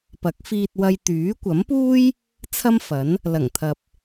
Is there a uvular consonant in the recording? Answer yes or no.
no